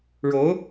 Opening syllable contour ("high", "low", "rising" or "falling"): rising